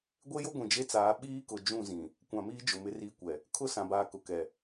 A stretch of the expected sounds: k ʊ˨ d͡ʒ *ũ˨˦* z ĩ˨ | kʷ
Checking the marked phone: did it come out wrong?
yes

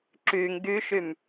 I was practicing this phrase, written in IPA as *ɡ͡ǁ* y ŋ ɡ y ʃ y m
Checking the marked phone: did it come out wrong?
yes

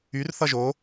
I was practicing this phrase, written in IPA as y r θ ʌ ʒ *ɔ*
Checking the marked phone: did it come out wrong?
yes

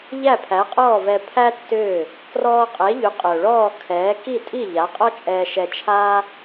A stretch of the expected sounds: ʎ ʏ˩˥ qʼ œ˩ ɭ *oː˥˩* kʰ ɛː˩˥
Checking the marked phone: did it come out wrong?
yes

